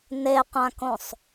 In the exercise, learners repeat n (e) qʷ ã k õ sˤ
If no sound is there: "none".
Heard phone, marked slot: e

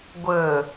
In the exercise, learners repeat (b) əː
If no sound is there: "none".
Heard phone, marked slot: ɡʷ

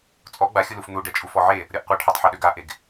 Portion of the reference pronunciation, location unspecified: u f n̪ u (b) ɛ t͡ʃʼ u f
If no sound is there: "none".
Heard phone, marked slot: ɖ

